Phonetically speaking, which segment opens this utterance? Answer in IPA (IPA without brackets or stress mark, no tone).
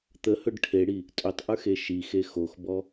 t̪